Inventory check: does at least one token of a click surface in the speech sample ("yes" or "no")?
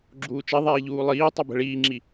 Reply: yes